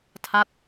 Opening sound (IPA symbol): tʰ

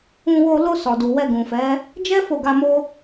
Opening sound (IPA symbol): ũ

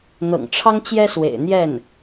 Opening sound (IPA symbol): n̪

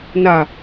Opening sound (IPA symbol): n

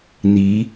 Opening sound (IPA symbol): n̪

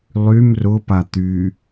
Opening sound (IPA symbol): lˠ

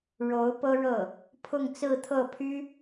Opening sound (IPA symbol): ɻ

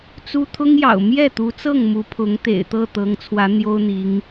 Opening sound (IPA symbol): t͡s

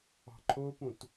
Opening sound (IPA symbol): ɑ̤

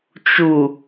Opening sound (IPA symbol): t͡ʃ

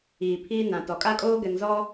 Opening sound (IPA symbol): iː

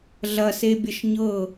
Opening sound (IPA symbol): ɮ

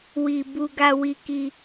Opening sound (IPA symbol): w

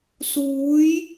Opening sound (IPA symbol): s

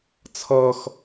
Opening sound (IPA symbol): t͡sʰ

